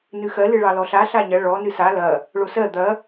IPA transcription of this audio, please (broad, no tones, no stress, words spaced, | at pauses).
nɨxɜ lɨɭɑlɔɬa ɬaɲɐ ɭɔ nɨsa lɐ | ɭosɜ d̪ɐ